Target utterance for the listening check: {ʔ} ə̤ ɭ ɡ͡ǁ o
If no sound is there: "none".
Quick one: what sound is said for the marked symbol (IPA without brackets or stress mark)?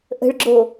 ʔ